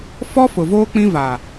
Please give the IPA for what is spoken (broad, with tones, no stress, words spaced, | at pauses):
fɔ˦ fʊ˨voː˦ k͡pĩ˦va˨